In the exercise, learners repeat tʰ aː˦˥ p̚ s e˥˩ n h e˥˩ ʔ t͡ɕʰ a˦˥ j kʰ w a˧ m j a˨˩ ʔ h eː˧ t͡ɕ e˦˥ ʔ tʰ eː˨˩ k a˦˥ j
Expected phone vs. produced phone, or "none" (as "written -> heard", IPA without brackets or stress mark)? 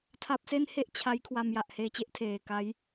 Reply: aː˦˥ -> a˦˥